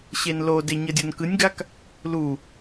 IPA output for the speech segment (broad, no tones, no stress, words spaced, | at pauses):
ɕenlode ɲʌdʲonkɯnʲɡak | lu